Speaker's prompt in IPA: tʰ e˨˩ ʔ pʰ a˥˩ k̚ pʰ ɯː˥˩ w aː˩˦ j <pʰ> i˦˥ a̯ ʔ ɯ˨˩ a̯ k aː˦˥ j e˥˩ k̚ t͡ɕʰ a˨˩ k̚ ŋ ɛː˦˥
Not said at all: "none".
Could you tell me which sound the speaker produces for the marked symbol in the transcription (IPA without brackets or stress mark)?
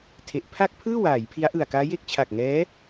pʰ